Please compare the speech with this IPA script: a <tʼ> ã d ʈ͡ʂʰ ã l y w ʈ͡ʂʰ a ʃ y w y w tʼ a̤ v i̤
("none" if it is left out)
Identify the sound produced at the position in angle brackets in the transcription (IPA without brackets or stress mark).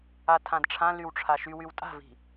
tʰ